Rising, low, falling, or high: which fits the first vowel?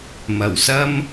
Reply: low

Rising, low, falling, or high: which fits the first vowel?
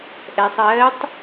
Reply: low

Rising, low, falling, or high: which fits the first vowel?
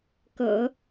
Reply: low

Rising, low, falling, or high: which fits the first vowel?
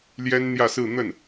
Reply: high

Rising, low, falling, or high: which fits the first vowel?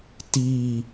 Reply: falling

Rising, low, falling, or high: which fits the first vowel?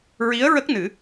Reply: rising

